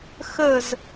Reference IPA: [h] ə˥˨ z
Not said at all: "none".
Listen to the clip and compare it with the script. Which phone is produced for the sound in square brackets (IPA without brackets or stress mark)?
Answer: x